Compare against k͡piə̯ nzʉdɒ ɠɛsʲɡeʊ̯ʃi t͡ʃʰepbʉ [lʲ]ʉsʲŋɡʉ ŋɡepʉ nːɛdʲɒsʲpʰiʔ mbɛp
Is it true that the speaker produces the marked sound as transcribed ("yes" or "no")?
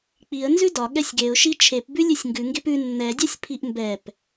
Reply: yes